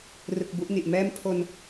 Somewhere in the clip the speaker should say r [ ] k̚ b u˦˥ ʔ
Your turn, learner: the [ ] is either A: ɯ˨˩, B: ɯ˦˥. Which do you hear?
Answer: A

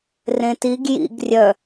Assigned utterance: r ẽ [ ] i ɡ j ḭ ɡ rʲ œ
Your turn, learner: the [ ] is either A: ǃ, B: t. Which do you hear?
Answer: B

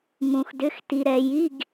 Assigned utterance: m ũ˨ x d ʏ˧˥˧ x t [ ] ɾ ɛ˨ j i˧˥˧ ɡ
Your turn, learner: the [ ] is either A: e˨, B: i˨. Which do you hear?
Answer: B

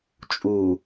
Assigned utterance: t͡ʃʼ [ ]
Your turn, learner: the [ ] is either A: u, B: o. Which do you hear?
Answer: A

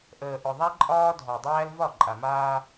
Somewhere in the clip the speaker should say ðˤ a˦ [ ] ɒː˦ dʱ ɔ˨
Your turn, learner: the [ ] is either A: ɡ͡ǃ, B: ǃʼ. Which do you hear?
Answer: B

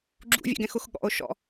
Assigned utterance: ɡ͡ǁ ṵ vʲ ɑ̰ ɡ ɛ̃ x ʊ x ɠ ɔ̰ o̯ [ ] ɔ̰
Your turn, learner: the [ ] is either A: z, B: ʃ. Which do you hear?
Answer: B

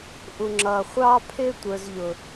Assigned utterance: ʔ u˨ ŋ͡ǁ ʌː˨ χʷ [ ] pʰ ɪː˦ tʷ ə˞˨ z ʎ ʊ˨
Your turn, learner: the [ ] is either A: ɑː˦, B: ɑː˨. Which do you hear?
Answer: A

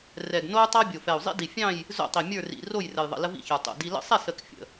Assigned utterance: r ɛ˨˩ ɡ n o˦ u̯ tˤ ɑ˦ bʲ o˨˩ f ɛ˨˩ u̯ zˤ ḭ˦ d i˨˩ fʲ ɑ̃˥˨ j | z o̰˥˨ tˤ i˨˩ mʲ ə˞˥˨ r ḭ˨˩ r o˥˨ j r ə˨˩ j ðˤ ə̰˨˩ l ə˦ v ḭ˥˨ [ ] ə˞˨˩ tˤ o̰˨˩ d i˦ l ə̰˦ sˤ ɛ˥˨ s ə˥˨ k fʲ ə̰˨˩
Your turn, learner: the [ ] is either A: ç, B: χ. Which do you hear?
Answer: A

